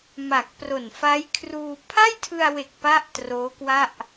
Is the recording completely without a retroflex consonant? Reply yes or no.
yes